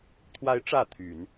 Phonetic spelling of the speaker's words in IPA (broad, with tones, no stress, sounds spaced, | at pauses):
t̪ʰ w a˧˥ ɪ̯ ʈ͡ʂ ä˥˩ t̪ʰ y˨˩˦ n